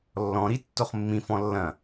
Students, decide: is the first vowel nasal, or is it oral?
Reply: nasal